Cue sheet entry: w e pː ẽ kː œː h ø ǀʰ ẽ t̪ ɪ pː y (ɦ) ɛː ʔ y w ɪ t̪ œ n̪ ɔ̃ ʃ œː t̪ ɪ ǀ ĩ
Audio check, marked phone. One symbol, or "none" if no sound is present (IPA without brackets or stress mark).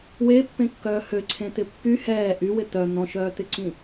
h